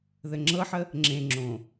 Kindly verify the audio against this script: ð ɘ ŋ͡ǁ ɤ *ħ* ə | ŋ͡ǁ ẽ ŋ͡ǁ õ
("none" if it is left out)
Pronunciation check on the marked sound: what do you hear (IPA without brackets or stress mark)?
ħ